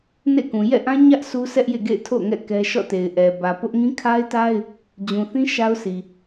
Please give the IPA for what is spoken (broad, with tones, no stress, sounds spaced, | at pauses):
n ḛ˦˨ k ũ˨ j ɛ̰˦˨ ʔ ã˦ ɲ ä˦ ʔ sʰ u˦ s ɛ˦ ʔ j ḛ˦˨ ɡ ḛ˦˨ ɪ̯ tʰ o̰˦˨ ʊ̯ ŋ ɛ̰˦˨ k ɛ˦ ʃ ɔ̰˦˨ t e˨ ɪ̯ ʔ ɛ˨ b ä˨ p ʊ˦ ʔ ŋ ĩ˦ kʰ a˦ ɪ̯ t a˦ ɪ̯ | d͡ʑ ũ˨ θ ĩ˦ ʃ a˦ ʊ̯ s i˨